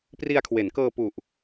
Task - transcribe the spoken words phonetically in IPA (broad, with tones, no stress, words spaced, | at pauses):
pri˧a̯kʰwe˩˦nkɤː˧ pu˨˩ʔ